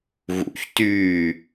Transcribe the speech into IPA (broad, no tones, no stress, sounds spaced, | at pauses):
ɣ ṵ ç t yː